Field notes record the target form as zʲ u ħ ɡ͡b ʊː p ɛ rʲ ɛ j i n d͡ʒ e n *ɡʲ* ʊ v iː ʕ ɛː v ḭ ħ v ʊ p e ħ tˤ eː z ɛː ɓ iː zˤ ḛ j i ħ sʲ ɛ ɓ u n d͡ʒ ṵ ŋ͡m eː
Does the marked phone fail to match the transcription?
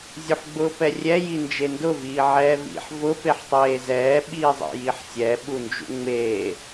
yes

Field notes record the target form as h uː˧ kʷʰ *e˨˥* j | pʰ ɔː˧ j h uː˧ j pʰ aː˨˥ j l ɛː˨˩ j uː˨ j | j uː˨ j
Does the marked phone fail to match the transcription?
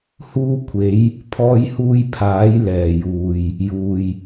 yes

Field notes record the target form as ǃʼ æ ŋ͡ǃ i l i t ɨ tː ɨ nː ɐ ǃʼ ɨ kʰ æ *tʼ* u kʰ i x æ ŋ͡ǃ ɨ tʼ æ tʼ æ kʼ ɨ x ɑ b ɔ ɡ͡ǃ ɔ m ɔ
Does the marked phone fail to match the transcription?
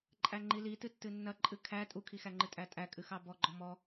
no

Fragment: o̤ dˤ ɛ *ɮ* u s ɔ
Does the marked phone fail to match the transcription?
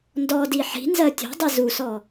yes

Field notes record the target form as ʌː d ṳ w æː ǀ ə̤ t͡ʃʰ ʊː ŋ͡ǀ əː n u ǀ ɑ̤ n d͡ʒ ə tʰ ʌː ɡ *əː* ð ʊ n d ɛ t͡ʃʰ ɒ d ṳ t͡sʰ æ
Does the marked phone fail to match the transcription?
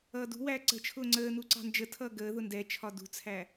no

